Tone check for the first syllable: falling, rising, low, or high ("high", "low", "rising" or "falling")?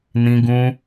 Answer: high